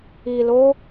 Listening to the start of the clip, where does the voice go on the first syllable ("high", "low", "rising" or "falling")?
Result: low